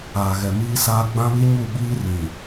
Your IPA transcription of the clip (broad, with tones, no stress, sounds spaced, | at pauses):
aː˨ ɣ ɛ˨ m iː˦ s aː˦ ɡ͡b ã˦ β i˦ ɲ u˦˨ ɓ iː˦ r ĩ˨